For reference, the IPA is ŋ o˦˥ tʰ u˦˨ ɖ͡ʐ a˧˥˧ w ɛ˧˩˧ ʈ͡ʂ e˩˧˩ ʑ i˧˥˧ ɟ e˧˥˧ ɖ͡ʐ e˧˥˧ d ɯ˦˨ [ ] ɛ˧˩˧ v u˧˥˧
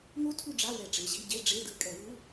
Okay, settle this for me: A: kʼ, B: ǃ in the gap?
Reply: A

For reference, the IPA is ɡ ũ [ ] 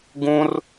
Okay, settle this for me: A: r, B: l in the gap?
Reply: A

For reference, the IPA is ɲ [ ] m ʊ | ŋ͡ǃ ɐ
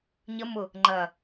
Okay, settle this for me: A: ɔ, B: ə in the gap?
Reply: B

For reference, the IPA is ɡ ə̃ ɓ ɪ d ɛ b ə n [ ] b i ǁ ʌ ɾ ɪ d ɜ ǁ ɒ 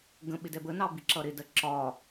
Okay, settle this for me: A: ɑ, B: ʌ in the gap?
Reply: A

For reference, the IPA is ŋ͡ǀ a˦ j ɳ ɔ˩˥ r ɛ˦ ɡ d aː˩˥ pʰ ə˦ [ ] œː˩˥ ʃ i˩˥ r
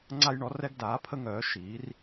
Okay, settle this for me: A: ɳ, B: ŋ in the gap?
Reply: B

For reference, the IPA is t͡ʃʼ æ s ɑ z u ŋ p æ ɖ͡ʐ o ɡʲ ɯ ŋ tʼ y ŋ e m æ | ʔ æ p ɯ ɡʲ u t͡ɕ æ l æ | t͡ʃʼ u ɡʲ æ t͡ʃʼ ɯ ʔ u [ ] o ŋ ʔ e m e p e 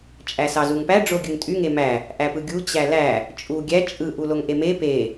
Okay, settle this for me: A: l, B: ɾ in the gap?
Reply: A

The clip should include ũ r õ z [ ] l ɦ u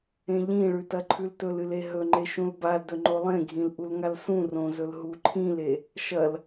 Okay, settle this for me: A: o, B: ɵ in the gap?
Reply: B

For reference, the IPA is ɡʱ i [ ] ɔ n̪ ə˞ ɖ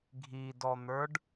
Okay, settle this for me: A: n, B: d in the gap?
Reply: B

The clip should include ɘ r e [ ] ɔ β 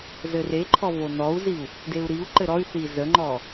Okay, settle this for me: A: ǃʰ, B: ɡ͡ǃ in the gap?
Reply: A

